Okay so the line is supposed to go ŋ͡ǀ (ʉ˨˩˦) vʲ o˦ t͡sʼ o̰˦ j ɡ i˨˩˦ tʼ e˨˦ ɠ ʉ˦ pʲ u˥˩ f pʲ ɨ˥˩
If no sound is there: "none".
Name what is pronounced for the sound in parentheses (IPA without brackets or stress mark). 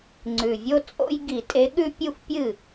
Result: ʉ˨˩